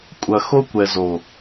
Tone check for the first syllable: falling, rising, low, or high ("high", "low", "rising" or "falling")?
low